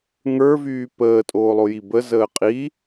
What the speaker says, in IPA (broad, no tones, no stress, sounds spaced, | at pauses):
ŋ ə˞ v yː p əː tʼ oː lˠ o j i b ə z əː qʼ i